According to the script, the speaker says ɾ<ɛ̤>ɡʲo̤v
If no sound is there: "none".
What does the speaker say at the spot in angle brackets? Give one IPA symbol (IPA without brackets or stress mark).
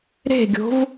e̤